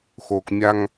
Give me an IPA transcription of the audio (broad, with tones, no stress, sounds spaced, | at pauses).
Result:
x o˨ k mʲ a˦ ŋ